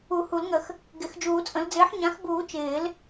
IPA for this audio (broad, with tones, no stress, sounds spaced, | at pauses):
u˨˩˦ h u˨˩˦ l ŋ ə˨˩˦ x | ɡ ɪ˨˩˦ x d͡ʒ uː˨˩˦ t͡sʼ ə̃˩˥ l d͡z ɪː˩˥ ħ ɲ ã˩˥ x b uː˨˩˦ t͡ʃ ɪː˨˩˦ l